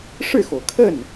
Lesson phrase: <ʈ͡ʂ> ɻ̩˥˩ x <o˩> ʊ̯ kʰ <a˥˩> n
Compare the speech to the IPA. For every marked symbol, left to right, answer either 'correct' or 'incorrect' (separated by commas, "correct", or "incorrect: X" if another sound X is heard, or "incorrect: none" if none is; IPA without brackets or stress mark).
incorrect: ʂ, correct, incorrect: ə˥˩